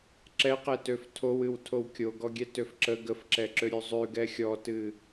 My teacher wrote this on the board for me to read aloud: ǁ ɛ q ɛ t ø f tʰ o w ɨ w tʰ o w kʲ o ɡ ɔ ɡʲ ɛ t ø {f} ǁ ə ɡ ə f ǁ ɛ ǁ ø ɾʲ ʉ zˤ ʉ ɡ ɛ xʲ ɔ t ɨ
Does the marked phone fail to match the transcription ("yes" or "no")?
no